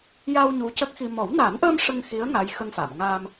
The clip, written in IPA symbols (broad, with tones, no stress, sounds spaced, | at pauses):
j a˧ w ɲ u˧˥ c ə˦˥ k̚ x i˧ m ɔ˨˩˦ w n a˨˩˦ n ʔ əː˧ m ʂ ə˧ ŋ x i˧˥ ə̯ ŋ aː˧˥ j x ə˧ ŋ f a˨˩˨ m ŋ aː˧ m